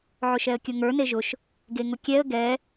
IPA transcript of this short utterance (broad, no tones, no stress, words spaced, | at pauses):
ʕʊʃɛə̯kʲʊŋə˞ neʒʊʃ | ɡeŋʊkʲɛə̯ ɡɛ